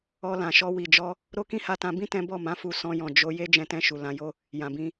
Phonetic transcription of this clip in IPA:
ɔ˧ l ã˨ ʃ ɔ˧ w i˨ d͡ʒ ɔ˧ | ɾ o˦ k ĩ˦ h a˧ t ã˧ b ĩ˦ t ɛ̃˦ b ɔ˦˨ m ã˨˦ f u˧ s ɔ̃˧ j ɔ̃˨ d͡ʒ o˧ j e˦ d͡ʒ ɛ̃˧ t ɛ̃˧ ʃ u˨ l ã˨˦ j o˦ | j ã˨ b ĩ˧

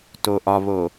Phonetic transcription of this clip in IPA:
t o ʔ ɒ β o

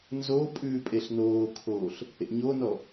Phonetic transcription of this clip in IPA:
n z o pʼ ʉː pʼ e ɬ n oː kʰ oː ɬ | ḛ ɲ o n ɔ

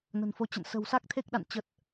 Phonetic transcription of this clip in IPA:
n ə̤˨˩ n f o˨˦ t͡ɕ ə̰˧˨ n s ə̤˨˩ w s a˦˥ k̚ t̪ʰ e˦˥ k̚ ɗ a̰˧˨ n t͡ɕ ə˨˩ t̚

